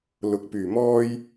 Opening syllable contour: rising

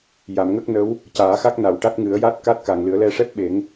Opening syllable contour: low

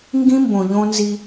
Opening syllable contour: high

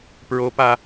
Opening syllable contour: rising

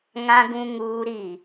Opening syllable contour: high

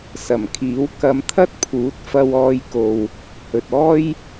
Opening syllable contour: low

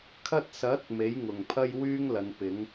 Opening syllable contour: high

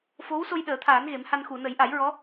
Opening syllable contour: rising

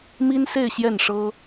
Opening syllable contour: high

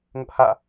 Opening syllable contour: high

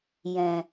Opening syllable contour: low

